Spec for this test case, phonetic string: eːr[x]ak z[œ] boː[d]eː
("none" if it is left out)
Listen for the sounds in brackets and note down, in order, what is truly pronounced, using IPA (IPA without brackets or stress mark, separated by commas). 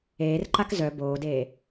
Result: ǃ, œ, d